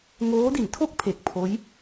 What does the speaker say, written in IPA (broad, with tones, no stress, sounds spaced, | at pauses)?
ŋ oː˦˥ d i˩˦ n tʰ o˥˩ k̚ pʰ e˨˩ k̚ pʰ oː˦˥ j